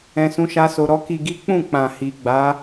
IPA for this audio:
ɛ̃˧ s ũ˦ ʃ a˦ s o˧ ɾ ɔ˦ k i˧ ɡ i˦ k͡p ũ˦˨ k͡p ã˨ h i˨ ɡ͡b a˨˦

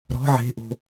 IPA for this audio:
ɾ ɔ̤ ʕ e̤ ʔ o̤

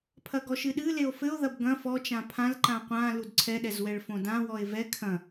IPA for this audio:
pʰ ɐ ɡ ɔ ʃ ɨ ɗ ɨ l e o̯ f ɘ o̯ ð ɐ b ɡ ɐ̃ f ɔ t͡ʃ ã pʰ ã l ǃ ã qʷ ã l u d ǀʰ ɛ ɗ ɛ z w ɛ ɭ f õ d ã w ɔ e̯ v ɛ kʰ ɐ̃

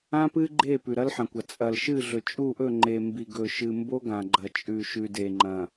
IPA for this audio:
ã˦ p ɨ˦ ɡ͡ǃ e˦˨ p ʉ˨ ɾ ɐ˦ l ħ ɐ̃˨ kʷ ɐ˨ t͡sʼ ɐ˨ l ʃ ɨ˦˨ ɮ ɵ˨ t͡ʃʼ u˦˨ ʔ ɵ˦˨ ŋ͡ǃ e˨ m b i˨ ɡ ɵ˨ ʃ ɨ˨ m b o˦ ɡ ã˨ ɡ͡ǃ ɐ˨ t͡ʃʼ ʉ˨ ʃ ʉ˨ d e˨ ŋ͡ǃ ɐ̃˨

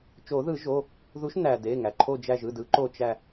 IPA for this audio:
t͡ʃ o˨˩˦ ð ɯ˨˩˦ ʒ o˩˧˩ | ð u˨˥ ʃ n æ˩ d e˩˧˩ ŋ æ˩ ǃʰ o˧˩ d͡ʒ æ˧˩ ʒ ɯ˩˧˩ d ɯ˨˩˦ ǃ o˧˩ t͡ʃ æ˧˩

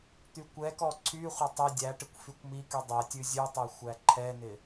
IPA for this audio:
t̪ y kʷ ɛ k ɔ ǀʰ y χʷ ɪ tˤ ɪ dʲ æ ʈ ɪ kʷ f y kʷ m i k y dˤ ɛ tʲ ʉ zʲ ʉ tˤ ɛ xʷ æ ǃʰ ɛ n ɪ

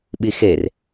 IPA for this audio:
ɓ i x e r

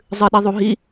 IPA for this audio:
zˤ ɨ ɗ i ðˤ u ɦ i

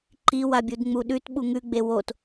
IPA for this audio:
ǃ i w a bʲ u d ŋ͡m u ɗ ʉ t ɓ u ŋ ʉ ɡ͡b e w o t

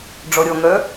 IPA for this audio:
ɖ͡ʐ ɔ ɾʲ ɔ ŋ œ

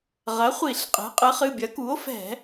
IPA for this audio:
ʁ ɐ˩˥ χʷ i˧˩˧ ɬ qʼ ɛ̤˩˥ qʼ ɨ˩˥ χ ɨ˩˧˩ bʲ ɐ˩˥ k u˩˥ o̯ f ɛ̤˧˩˧

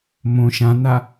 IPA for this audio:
m õ ʃ ã n a

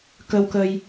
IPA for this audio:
k ə˧ w k ə˧ j

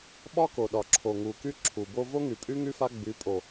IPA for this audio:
ɓ ɒ˦ k o˨ ɗ ɒ˨ ǁʰ o˨ ŋ u˨ k y˦ ǁʰ u˨ b o˧ v o˦ ŋ y˨ pʼ y˦ ŋ y˦ f a˦ ɡ͡b y˨˦ pʼ o˨

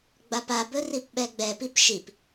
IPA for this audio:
ɡ͡b a p a b ɵ r i p ɓ ɛ ɡ͡b ɛ p i p ʃ i p

